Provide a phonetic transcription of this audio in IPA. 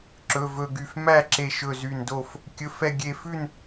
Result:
ǁ ɵ˩˧˩ v ɵ˧˩ ɡ y˧˩ f m æ˥˨ ǁ e˧˩ ʃ ɵ˧˩ z y˧˩ n d o˥˨ f | kʲ ɵ˩˧˩ f ɛ˧˩ ɡʲ e˧˩ f ʉ˥˨ n

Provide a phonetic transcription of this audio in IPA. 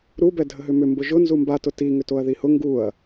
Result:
ɾ u b ɛ dʱ ə ɦ ʏ m ʏ m b ʊ ʒ ʊ n z u m b a t ʊ t i ŋ ʏ t o ɐ̯ ð i h ʊ ŋ ɡ u ɐ̯

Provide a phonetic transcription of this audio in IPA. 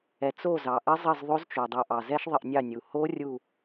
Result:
ɛ˩ t͡s o˦˨ z ɑ˩ ʔ ə˦˥ zˤ ə˦˨ z ðˤ o˦˥ z t͡ʃ o˩ dˤ u˩ ʔ ɑ˩ z ɛ˦˥ ʃ ðˤ ə˦˨ ʔ nʲ ɑ˦˨ nʲ u˩ h o˦˥ rʲ u˦˨

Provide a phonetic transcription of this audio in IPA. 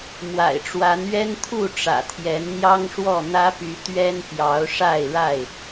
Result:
m w a̰˨˩ ɪ̯ ʈ͡ʂ w a˨˦ n ɥ ɛ˦ n t̪ʰ u˥˨ ʈ͡ʂ ä̰˨˩ t̪ʰ j ɛ˨˦ n n̪ j ɑ˦ ŋ ʂ w ɔ˥˨ n̪ ä˦ p y˨˦ t̪ ɥ ɛ˦ n p j ɑ˨˦ ʊ̯ ʂ a˥˨ ɪ̯ ɻ a˥˨ ɪ̯

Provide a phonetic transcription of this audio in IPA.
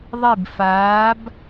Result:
ðˤ i˥˧ b f aː˧˥ b

